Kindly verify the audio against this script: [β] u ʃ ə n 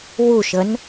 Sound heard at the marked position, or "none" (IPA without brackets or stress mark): w